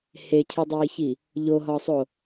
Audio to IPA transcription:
h e cʰ i dˤ iː ç i | ʎ o ɦ ɒ sˤ o

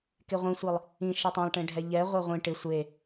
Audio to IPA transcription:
k e ʁʷ ĩ sʷ i lˠ | ĩ ʃ e tˤ ɛ̃ lˠ ʈ ẽ ɖʱ ɛ ʎ ɛ ʁʷ e ʁʷ ĩ ʈ ɪ sʷ e

